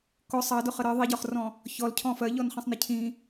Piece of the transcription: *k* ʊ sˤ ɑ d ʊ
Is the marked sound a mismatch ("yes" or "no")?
no